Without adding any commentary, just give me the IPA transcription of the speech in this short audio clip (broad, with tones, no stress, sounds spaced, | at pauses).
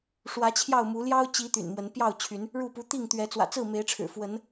ʂ w ä˨˦ t͡ɕʰ j ɑ˥˨ ʊ̯ m u˨˦ l j ɑ˦ ʊ̯ t͡ɕ i˨˦ t̪ y̰˨˩ n m w ə˨˦ n p j ɑ˥˨ ʊ̯ t͡ɕʰ y˨˦ n | ɻ u˥˨ p u˨˦ t̪ i˥˨ ŋ t̪ ɥ ɛ˨˦ t͡s w ä̰˨˩ t͡s ɹ̩˥˨ m e˨˦ ɪ̯ ʈ͡ʂʰ ɻ̩˨˩ f w ə˨˦ n